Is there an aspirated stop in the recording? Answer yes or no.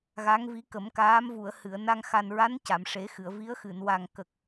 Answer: no